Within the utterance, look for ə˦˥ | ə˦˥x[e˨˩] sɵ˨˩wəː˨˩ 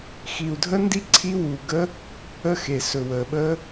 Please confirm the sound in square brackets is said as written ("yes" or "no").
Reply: yes